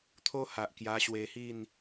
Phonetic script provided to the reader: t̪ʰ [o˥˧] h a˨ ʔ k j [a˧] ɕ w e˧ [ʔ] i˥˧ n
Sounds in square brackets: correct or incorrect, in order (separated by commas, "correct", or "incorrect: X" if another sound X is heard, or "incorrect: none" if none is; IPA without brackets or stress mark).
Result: incorrect: o˦, correct, incorrect: h